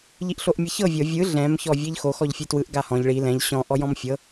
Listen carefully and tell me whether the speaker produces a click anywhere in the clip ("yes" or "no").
no